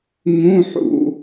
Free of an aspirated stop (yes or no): yes